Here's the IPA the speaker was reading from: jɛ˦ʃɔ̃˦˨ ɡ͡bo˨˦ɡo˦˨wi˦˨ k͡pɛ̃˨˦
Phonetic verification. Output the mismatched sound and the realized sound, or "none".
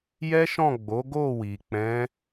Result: i˦˨ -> i˨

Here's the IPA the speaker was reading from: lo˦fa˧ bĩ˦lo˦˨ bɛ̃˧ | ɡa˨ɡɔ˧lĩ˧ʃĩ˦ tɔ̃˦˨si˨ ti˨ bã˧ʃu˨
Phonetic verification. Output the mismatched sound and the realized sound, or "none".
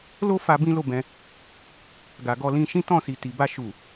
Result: ã˧ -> a˧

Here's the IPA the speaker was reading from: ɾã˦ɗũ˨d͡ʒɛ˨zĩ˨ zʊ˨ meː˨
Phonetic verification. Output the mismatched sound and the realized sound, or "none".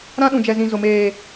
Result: none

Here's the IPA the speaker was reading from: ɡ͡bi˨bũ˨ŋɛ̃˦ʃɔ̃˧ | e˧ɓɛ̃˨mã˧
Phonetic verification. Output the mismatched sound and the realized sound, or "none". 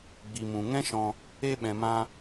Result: b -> m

